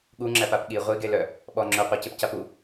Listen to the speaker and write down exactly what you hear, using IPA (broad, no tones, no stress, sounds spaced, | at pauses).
ɠ u ŋ͡ǁ æ p a p ɠ i ʁʷ i ɡ e l œ | ɓ ɔ ŋ͡ǁ œ qʷ æ c e p c a p u